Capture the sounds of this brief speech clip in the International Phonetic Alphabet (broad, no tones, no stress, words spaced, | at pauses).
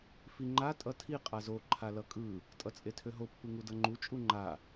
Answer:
fiŋ͡ǃa tʼʌtʰi qʼazo ǃʰalʌkʼɯ | tʼʌt͡sʼetʰøɦo pːɯŋudʌŋ͡ǃu t͡ʃʼuŋ͡ǃa